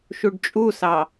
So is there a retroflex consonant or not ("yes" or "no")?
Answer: yes